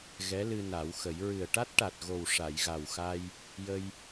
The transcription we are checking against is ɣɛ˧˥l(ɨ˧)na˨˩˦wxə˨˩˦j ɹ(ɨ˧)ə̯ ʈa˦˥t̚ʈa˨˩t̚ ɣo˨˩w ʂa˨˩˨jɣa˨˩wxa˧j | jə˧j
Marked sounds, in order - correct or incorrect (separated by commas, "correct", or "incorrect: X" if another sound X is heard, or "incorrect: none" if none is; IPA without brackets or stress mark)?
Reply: correct, incorrect: ɨ˨˩